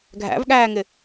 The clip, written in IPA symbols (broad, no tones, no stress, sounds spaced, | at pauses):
ɡʱ æ̰ v ɠ æː ŋ ɪ